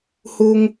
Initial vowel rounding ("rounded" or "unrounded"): rounded